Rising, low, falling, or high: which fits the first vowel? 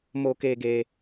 low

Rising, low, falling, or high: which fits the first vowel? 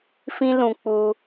high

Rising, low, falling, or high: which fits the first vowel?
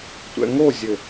low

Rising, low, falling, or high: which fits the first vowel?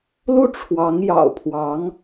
falling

